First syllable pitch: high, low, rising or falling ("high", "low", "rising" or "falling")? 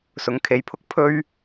rising